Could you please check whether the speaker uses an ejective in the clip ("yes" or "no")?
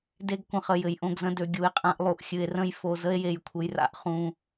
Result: yes